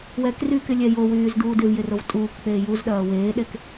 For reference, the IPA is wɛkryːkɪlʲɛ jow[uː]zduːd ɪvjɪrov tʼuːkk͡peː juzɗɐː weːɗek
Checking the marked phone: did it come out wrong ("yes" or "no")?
yes